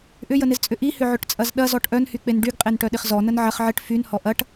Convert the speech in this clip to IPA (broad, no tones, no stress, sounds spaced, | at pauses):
ʔ ʏ j ə n ɪ z t͡sʼ ʏ ʔ i h ʏ ʕ ʏ ʈ t͡sʼ ɐ z ɗ ɐ z ɔ ʈ ʔ œ n h y k͡p e n ɖ y ɡ qʼ e n ʈ œ ɗ ɪ χ z ɔ n ə n ʕ ɐ χ ʕ ɪ ʈ f y n h ɔ ʔ ɐ ʈ